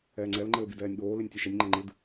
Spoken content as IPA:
ɛː ŋ͡ǀ ɛ l ŋ͡ǃ ɘː b i d ɛː nʲ ɠ oː l i nʲ tʲ e ʃ ɛ nʲ ŋ͡ǃ ɛ ŋ͡ǃ ɨ d

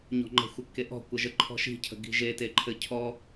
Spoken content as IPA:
ɲ ɔ̤ ŋ͡ǃ ə̤ xʷ ə kː e ʔ ɔ̤ kʷ ə ʒ ə ǃʰ ɔ̤ ʃ i̤ cʰ ə̤ ɡ i̤ ʒ e t e ǃʰ ɘ cʰ ɔ

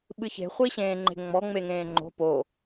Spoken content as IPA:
ɓ ɨ ç e̤ χʷ i ɕ ẽː ŋ͡ǃ e̤ ŋ͡m ɔ ŋ͡m e ŋ ẽː ŋ͡ǃ o̤ p o

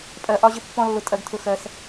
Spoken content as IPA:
pʼ ɜ˧ ʔ ɒ˦ ʑ ə˦ pː ɔ̃˦ lː ʊ˧ tʼ ɜ˧ ɡ tʰ ʊ˧ x ɜ˧ s

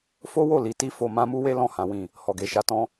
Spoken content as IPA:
f o˦ w o˦˨ l i˨˦ t i˦ f o˧ m ã˦ m u˦ w e˦ l ɔ̃˦˨ h ã˨˦ w ĩ˦˨ | h ɔ˨ ɡ e˨ ʃ a˧ t ɔ̃˦

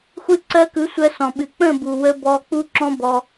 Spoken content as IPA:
xʷ ɨ˧ ǀ ɜ˧ k ɯ˨˦ sʷ ɜ˧ s ɔ̃˨ ɓ ɨ˨ k͡p ə̃˦˨ b u˨ w ə˧ b ɔ˧ k͡p u˦ ǁ ɔ̃˦ b ɔ˧

